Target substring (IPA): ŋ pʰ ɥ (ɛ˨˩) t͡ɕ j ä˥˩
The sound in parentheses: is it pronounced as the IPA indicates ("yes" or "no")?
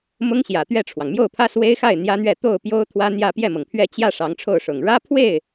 no